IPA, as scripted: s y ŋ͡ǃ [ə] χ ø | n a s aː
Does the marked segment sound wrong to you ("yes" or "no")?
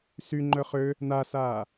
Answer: yes